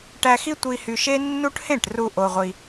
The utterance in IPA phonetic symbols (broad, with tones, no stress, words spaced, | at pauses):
ʈæ˧xi˦ tʷi˧hy˧ʃe˦ nːu˦ʈ hẽ˦˨ʈru˧ ʔo˧ʁʷi˧